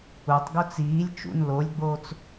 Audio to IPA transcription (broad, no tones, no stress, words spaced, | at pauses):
utˤ ɡot͡siːlʲ t͡ʃṵn lolʲɡ͡boːt͡s